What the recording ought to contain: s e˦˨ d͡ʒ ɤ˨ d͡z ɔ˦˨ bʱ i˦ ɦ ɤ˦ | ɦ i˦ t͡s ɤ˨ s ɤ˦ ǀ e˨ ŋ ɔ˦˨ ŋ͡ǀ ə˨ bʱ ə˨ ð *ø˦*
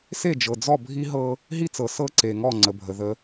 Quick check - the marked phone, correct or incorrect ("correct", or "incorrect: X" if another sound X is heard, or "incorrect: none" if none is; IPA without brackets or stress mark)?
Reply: incorrect: ə˦